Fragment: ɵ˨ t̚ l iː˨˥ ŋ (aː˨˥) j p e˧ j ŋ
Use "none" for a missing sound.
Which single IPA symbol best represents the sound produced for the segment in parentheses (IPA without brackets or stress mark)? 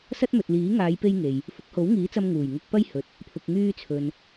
aː˨˧